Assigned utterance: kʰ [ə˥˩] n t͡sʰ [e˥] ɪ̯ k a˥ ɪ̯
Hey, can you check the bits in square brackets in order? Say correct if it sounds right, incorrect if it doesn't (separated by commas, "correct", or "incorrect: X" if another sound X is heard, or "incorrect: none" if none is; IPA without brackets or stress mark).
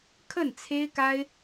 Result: correct, correct